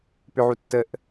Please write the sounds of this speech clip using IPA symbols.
pʏʕu tːəʔ

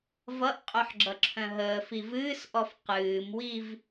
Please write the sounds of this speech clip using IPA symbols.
vʌʔqʼœħɡ͡ǁʌǁʰœ̃ ɦəːfiv ɨːsʔɔf qɨːmwiv

